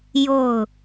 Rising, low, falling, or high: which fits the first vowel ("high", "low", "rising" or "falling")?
falling